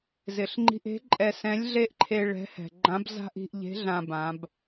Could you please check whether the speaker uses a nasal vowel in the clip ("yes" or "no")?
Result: yes